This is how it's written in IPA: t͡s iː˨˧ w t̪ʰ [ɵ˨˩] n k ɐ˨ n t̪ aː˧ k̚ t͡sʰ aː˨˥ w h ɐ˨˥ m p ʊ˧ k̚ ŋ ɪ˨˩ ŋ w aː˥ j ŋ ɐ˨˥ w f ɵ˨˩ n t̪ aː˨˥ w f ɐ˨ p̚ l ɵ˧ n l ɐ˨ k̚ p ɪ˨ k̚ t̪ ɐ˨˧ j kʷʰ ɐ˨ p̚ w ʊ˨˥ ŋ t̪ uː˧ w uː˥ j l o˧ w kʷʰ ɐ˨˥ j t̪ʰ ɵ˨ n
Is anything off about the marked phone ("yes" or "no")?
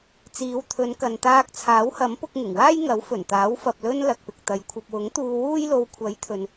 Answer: yes